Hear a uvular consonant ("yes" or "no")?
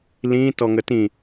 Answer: no